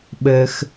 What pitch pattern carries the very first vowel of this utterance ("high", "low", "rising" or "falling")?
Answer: low